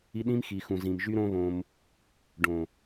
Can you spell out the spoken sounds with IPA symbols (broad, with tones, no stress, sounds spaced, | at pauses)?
i˦ ɗ ĩ˦ m x i˨ x ũ˨ z ĩ˨ m ʒ y˦ ɾ õ˦ β õ˧ m | ɖ õ˨